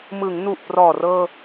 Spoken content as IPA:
m ɯ˩˦ ŋ n u˨˩ ʔ p r ɔː˨˩ r ɤː˧

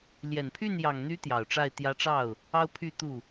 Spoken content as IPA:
l j ɛ˨˩ n pʰ y˥˩ n j ɑ˨˩ ŋ n̪ y˧˥ t̪ j ɑ˨˩ ʊ̯ ʈ͡ʂ a˥˩ ɪ̯ t̪ j ä˧˥ ʈ͡ʂ ɑ˥˩ ʊ̯ | ɑ˥ ʊ̯ pʰ y˥˧ t̪ u˥˩

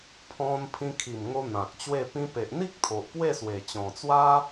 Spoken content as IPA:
pʰ ɔ̃˧ n pʰ ĩ˧ kʰ i˨˩ m ŋ o˧ n̪ ã˨ k̚ t͡ɕ w e˥˧ p ĩ˧ p e˨ ʔ n̪ i˦ k̚ t̪ʰ o˨ ʔ p w e˥˧ s w e˨˩ t͡ɕ ɔ̃˨˩ t͡s w a˦

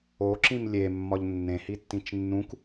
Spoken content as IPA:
o ǁ ĩ m lʲ e mː ɒ ʎ nː ẽ h i tː ĩ t͡ʃ nː ũ k

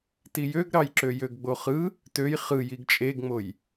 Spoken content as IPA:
t i j ø ɡ ɾ ɑ j ǁ ø j ø ɡ ɡ͡b o χ ɯ | t ø j χ ɯ j i ɡ t͡ʃʼ e ɡ ŋ͡m o j

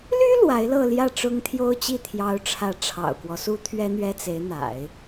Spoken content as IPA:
l y˥ l w a˧˥ ɪ̯ l ɤ˥˧ l j ä˥˩ ʈ͡ʂ ʊ˥ ŋ t̪ʰ j o˥ ʊ̯ t͡ɕ i˥˩ t̪ʰ j ɑ˧˥ ʊ̯ ʈ͡ʂʰ ä˧˥ ʈ͡ʂʰ ɑ̰˨˩ ʊ̯ k w ɔ˦ s u˥ t̪ʰ ɥ ɛ˥ n̪ ɥ ɛ˥ t͡s e˧˥ ɪ̯ n̪ a̰˨˩˦ ɪ̯

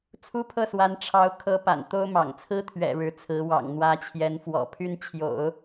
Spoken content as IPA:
t͡sʰ u˥ pʰ ɤ˥˩ s w a˧˥ n ʈ͡ʂʰ ɑ˧˥ ʊ̯ kʰ ɤ˧˥ p a̰˨˩ n t̪ o˥ ʊ̯ m ɑ̰˨˩ ŋ t͡sʰ ɹ̩˥ t̪ʰ ɥ ɛ̰˨˩ ɻ ɻ̩˧˥ t͡sʰ ɹ̩˧˥ w ɑ̰˨˩ ŋ n̪ w ä˧˥ t͡ɕʰ j ɛ˧˥ n f w ɔ̰˨˩ pʰ y˥ n t͡ɕʰ j o̰˨˩˦ ʊ̯

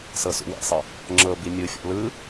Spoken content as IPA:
s ɤ s ṵ w ḛ sˤ ɤ | ŋ͡ǁ ɤ b i mʲ ɯ fʲ ɔ̰ l ɯ

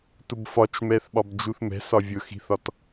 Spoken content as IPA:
t ʊ b f ɒ t͡ʃ m ɛ θ ɓ ɒ b d͡ʒ u θ m ɛ̤ s ɒ vʲ ʊ x i̤ θ ɒ t

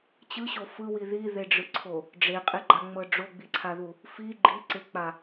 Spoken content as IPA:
t͡ɕ ɯ ɕ o f ɯ w i ð i ð e ɖ͡ʐ ɯ ǀʰ o | ɖ͡ʐ e qʼ e ɡ͡ǃ a ŋ͡m ɤ ɖ͡ʐ o ɡ͡b i ǀʰ a ð u | f i ɡ͡ǃ i ǀ e k͡p a

